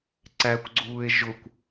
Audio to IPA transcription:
ǀ æ kʷ ɡ͡ǀ uː e̯ ʒ ʊ kʷ

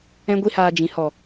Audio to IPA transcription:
ɛ̃˦ ɡʷ i˦ h aː˧ d͡ʒ ĩ˨ h ɔ˨

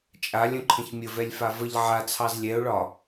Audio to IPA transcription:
t͡ʃʼ a lʲ ə̃ ǃʰ ə̃ ç mʲ ə v ɛ lʲ f a v ə ʎ ʕ a t͡sʰ ɑ z lʲ ɛ ʊ̯ ɭ ɒ

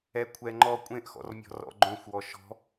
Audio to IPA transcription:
ɛ kʷʰ ɛ ŋ͡ǃ ɔ kʷʼ ẽ ʔ x ɔ̰ r mʲ ɔ̤ r ɔ̰ ɡ͡ǃ õ xʷ w ɔ ʃ ɔ̤

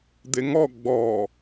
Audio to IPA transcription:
d̪ e ŋ ɔ ɡ͡b ɔ

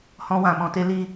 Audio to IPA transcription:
h ɔ̃˦ w ã˧ m ɔ̃˧ t e˦ l i˦˨

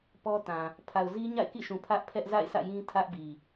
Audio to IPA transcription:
p ɔ˦ t ã˨ | pʰ a˨ ʊ̯ z i˦ ɲ a̰˦˨ ɪ̯ k ḭ˦˨ ʃ ũ˨ pʰ ä˦ ʔ pʰ ɛ˦ ʔ z a̰˦˨ ɪ̯ s ä̰˦˨ j ĩ˦ tʰ ä˦ ʔ b i˨

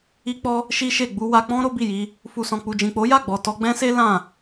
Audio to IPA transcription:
i˧ k͡p ɔ˧ | ʃ i˦ ʃ e˦˨ ɡ͡b u˧ w a˧ k͡p ɔ̃˦ ɾ o˦ b i˦˨ j i˧ | f u˧ s ɔ̃˨ k͡p u˨ d͡ʒ ĩ˨ k͡p o˨˦ j a˦˨ ɡ͡b ɔ˨ t ɔ˧ ɡ͡b ɛ̃˦ s e˦ l ã˦˨

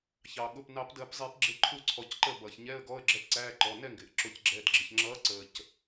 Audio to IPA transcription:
ç ɑ˩ ɠ ʊ˩˧˩ p n ɑ˨˩˦ p d əː˨˩˦ p zˤ i˨˩˦ p ɡ͡ǁ ɪ˦˨ ǃʰ u˦˨ ǀʰ ɔ˨˩˦ c ǃ ə˦˨ b ʌː˩ ç ɲ ɛ˧˥˧ ə̯ ɡ ɔ˧˥˧ ə̯ ɡ͡ǁ ɜ˦˨ p ǀ æː˧˥˧ ǃ ɔ˩˧˩ n ɛ˦˨ ŋ ɡ ɪː˩ ʔ ǁ ʊ˨˩˦ c ɡ͡ǁ ɛ˩˧˩ d ɡ͡ǁ ɪ˩ ç ŋ͡ǁ ʌː˨˥ ǀ əː˩ c

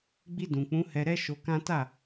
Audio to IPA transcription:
ɡ͡b i˧ d ũ˨ k͡p ũ˨˦ h ɛ˧ ɾ ɛ˦ ʃ o˧ k ã˦ t a˦˨

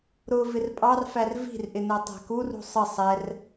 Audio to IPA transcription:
ɾ ʊ v ɪ r pʼ ɑ r f æ r v i̤ r ʔ ɪ n ɜ tˤ æ̤ k u r ṳ sˤ ə sˤ ɛ r

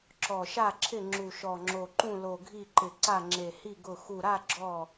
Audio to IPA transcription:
ǁ ɔ˧˩ ʃ a˥˨ ǁʰ ɪ˥˨ ŋ͡ǁ u˧˩ ʃ ɔ˧˩ ŋ͡ǁ o˧˩ ǃ ũ˥˨ l o˧˩ ɡʱ i˥˨ ǃ ɪ˧˩ ǀ a˥˨ ŋ͡ǁ e˧˩ h i˥˨ ɡ ʊ˧˩ x u˧˩ ɾ a˥˨ ɡ͡ǁ ɔ˥˨

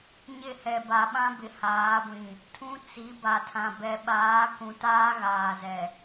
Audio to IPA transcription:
ɲ ɪ˦˨ h ɛ˨ b a˨ ɓ ã˦ b ɪ˨ h aː˨˦ ɡʷ ĩ˨ | tʰ ũ˦ t͡s i˨˦ b a˨ tʰ ã˨ b ɛ˨ ɓ aː˨˦ k ũ˨ t aː˦ ɣ aː˨ z ɛ˨

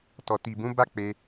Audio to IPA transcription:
t ɔ˨ t i˨ b ũ˨˦ b a˦ k͡p e˧

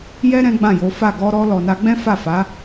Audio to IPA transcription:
j ɛ˦ ɾ ɛ̃˦ ɡ͡b ã˦˨ j o˨˦ f a˦˨ ɡ ɔ˧ ɾ ɔ˧ l ɔ˨ n a˧ ɡ͡b ɛ̃˦ f a˦˨ f a˨˦

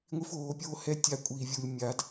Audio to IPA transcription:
ŋʷ i˦ f oː˨˦ pʲ oː˦ h ɛ˦ tʲ a˦ kʷʼ iː˧ vʲ u˧ lʲ mʲ a˨˦ d

